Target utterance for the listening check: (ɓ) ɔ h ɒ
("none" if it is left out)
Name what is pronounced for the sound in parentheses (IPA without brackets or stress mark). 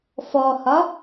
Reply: f